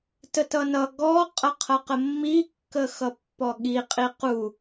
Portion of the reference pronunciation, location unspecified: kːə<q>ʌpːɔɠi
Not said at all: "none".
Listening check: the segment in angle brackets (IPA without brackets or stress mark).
x